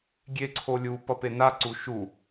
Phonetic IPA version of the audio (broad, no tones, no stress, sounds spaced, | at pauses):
ɡʲ e ǀʰ o lʲ u p ʌ p e n a ǀ u ʃ u